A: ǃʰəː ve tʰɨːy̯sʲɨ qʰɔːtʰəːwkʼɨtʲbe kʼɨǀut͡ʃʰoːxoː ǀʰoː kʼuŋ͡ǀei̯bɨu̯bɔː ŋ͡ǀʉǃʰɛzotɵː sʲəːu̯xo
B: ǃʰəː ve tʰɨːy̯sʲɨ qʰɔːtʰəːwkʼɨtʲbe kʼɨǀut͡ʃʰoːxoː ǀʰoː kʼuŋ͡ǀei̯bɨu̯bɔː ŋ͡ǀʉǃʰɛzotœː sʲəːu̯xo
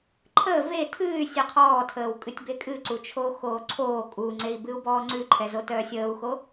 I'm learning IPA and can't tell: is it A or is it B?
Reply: B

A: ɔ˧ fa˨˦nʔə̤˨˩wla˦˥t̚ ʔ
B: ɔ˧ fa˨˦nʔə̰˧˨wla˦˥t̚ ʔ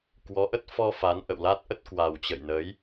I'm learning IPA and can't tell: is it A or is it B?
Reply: B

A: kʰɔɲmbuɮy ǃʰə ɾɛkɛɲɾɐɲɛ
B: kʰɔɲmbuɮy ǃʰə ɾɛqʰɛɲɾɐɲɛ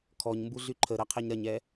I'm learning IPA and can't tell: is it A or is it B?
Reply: B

